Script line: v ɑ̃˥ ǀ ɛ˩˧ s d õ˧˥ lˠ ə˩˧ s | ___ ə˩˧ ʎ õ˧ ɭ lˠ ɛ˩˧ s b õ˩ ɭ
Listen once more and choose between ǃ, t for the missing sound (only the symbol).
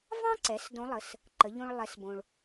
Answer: ǃ